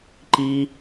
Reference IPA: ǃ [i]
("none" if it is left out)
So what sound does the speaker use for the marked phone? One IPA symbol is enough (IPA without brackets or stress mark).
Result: i